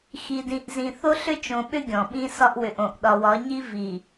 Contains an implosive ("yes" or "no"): yes